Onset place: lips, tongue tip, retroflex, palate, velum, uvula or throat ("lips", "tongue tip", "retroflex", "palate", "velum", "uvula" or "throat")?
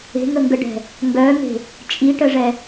velum